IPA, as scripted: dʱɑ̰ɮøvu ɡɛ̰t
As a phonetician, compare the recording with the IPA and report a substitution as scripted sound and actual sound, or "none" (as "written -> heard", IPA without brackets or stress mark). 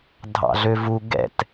none